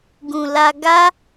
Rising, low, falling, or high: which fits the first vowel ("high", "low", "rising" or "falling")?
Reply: low